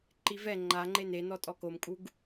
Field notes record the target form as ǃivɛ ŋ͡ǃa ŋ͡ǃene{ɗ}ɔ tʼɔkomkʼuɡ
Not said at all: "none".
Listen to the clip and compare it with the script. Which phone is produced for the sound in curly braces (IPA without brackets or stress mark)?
n